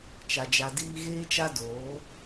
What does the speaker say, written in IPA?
t͡ʃa˧d͡ʒa˧diː˦ ɣeː˦t͡ʃa˦ doː˨˦

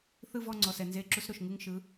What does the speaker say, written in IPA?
θɯ˥˨vɔ˥˨ŋ͡ǀɔ˩˧˩s ɛ˩nze˨˥ ǁu˨˥sɾo˩ʃ ŋɯ˥˨ŋʃɯ˨˥

